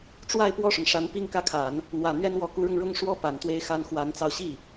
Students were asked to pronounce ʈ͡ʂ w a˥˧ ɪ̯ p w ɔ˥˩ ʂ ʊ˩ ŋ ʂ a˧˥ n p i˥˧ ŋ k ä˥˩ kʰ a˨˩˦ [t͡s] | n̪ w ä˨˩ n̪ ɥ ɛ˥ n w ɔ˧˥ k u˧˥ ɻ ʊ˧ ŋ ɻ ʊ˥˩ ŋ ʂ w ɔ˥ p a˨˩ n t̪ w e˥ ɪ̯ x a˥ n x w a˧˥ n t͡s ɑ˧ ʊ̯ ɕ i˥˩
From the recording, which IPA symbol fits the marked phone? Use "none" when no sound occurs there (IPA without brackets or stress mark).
n